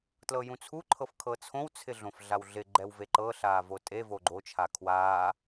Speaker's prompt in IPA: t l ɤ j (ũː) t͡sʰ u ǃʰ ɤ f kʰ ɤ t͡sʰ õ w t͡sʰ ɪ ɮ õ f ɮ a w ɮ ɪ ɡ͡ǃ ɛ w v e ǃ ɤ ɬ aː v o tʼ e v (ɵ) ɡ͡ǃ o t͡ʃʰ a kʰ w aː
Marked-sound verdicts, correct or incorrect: incorrect: ũ, incorrect: o

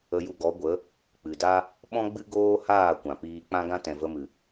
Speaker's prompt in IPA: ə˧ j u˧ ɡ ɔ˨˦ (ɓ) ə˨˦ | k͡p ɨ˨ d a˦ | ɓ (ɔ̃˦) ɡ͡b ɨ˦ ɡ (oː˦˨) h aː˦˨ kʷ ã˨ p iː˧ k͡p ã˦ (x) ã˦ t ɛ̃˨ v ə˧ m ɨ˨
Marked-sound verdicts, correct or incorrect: incorrect: ɡʷ, correct, incorrect: oː˦, incorrect: ɡ

